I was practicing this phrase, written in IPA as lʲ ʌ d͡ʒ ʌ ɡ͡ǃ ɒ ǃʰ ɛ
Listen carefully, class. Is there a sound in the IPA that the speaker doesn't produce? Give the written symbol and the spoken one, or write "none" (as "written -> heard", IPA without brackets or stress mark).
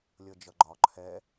none